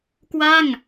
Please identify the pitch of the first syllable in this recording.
falling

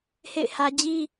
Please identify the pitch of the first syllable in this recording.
falling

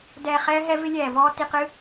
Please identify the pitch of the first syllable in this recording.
low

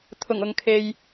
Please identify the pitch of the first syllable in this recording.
low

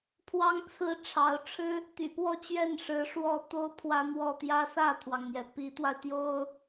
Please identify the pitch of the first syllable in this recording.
high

